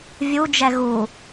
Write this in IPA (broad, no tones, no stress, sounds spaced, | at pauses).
vʲ u d͡ʒ ɛ ɣ u